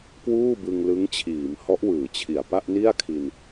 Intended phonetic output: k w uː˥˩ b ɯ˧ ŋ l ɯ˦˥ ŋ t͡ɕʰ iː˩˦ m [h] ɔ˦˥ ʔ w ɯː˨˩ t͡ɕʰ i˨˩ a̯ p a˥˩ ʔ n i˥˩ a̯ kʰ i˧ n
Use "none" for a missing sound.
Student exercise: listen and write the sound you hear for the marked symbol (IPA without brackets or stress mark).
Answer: h